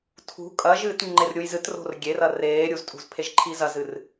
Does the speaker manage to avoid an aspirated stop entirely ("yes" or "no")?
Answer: no